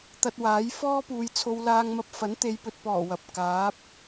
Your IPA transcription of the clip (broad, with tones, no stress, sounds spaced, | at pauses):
t̪ ɐ˧ t̚ w aː˨˥ j f ɔː˥ p uː˨ j t͡sʰ o˧ w l aː˧ ŋ m ɐ˧ p̚ f ɐ˨˥ n t̪ e˨˧ j p ɵ˨ t̚ p ɔː˨˩ w ɐ˨ p̚ k aː˨˥ p̚